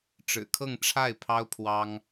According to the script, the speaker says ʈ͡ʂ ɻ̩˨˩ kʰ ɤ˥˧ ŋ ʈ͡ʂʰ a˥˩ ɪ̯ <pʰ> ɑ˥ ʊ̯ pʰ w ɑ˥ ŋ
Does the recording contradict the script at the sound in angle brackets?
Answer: no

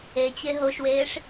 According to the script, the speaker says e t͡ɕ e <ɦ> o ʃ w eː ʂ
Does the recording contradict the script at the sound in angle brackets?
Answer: no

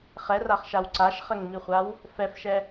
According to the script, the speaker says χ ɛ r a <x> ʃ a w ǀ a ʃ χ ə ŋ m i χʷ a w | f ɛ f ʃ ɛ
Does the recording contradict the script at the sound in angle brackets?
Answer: yes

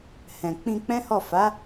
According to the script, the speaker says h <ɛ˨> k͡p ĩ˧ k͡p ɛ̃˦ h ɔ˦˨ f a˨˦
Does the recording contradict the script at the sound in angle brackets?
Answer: yes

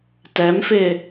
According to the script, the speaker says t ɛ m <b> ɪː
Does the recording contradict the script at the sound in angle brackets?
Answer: yes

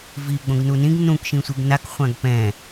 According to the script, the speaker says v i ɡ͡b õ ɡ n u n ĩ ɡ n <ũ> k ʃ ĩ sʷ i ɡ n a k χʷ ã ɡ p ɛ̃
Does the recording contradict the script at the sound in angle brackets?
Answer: no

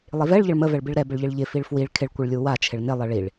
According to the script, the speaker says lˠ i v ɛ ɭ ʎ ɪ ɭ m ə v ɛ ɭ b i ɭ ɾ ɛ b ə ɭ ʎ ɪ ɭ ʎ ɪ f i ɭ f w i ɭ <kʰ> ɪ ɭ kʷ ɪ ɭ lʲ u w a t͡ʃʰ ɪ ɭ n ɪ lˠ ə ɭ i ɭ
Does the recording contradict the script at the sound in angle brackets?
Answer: no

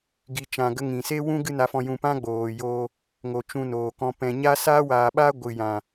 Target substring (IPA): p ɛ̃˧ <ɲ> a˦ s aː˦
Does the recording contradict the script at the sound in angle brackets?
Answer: no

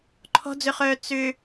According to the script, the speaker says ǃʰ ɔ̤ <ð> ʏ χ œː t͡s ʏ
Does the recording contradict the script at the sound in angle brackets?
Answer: yes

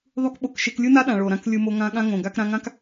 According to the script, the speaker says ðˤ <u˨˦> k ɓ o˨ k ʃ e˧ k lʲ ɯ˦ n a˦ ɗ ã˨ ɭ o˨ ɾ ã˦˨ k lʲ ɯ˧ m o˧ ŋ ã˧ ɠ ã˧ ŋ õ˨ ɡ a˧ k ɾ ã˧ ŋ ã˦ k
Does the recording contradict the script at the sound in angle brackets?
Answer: yes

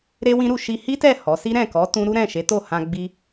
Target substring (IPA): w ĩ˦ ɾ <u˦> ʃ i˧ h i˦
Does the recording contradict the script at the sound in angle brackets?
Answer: yes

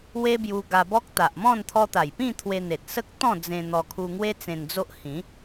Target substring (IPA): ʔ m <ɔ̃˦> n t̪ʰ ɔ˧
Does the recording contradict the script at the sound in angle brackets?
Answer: yes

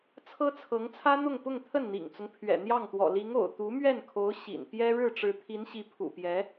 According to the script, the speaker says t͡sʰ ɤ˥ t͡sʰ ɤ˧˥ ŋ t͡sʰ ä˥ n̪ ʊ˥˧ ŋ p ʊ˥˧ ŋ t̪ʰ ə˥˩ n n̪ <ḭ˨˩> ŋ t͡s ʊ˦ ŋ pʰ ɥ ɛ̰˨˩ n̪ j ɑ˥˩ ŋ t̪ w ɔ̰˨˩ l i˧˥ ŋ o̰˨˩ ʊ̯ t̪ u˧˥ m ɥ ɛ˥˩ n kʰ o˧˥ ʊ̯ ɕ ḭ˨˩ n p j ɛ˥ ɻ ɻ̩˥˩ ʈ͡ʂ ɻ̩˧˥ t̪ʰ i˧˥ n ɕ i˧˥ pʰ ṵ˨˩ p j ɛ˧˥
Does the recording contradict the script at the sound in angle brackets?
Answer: no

